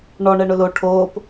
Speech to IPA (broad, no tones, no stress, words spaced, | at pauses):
ɳɔ ɳɛɳʊlo ʈʰoːp